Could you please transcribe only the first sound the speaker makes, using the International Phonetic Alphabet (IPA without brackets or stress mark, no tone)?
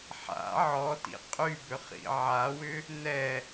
ħ